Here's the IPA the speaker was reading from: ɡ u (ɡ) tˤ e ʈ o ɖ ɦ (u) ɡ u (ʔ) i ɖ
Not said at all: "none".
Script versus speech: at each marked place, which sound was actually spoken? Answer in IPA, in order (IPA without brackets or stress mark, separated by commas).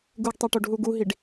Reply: ɡ, u, ɦ